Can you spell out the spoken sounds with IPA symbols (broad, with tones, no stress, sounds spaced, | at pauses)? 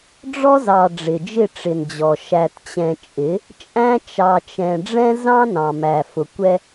ɖ͡ʐ ɔ˦ z ɑ˨ ɖ͡ʐ ɪ˨ d͡ʒ ɪ˦˨ ʈ͡ʂ ɪ˨ n d͡ʑ ɔ˨ ʃ æ˨ t t͡ɕ ɛ̃˨ t͡ʃʼ ɪ˨˦ | t͡ʃʼ æ̃˦ t͡ʃ ɑ˨ t͡ʃ ɛ̃˨ ɖ͡ʐ ɛ̃˦ z ɑ̃˦ n ɑ̃˨ m æ˨ f ʊ˨ kʷ ɛ˦